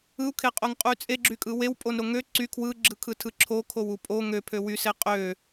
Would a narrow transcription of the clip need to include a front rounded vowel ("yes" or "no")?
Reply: yes